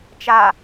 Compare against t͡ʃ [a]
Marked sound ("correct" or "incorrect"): correct